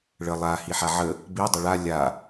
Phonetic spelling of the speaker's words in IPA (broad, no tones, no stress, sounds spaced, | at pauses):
ɭ ə lˠ a h i ħ a ʕ ə | b i dˤ ə ɭ a lʲ a